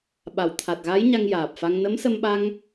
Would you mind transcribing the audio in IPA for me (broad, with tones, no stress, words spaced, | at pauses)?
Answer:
ɓa˨˩˨wt̪ʰa˨˩t̚ɣa˧˥j ɲa˧ŋjaː˨˩p̚fa˧ŋ nə˧˥msə˧mɓa˧ŋ